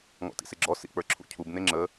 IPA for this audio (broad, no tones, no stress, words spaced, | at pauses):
ŋɔ̰tḭseɡ͡ǁɔ sḭk͡pə˞ǁʰṵcʰub neŋ͡ǁə